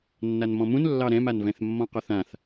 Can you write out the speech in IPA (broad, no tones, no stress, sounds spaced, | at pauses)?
nː a n m ɔ̃ m ũ n lː ɑ ɾ ɛ̃ m a n v ɛ̃ θ mː ɔ̃ q ɔ θ ã θ